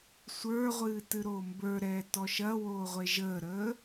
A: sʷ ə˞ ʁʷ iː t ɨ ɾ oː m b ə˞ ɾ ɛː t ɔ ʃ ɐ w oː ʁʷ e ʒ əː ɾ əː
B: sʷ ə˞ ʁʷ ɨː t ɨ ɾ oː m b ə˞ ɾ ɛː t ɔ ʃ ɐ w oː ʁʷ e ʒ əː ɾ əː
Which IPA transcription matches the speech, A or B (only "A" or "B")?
B